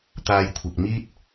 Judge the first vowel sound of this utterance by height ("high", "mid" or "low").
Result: low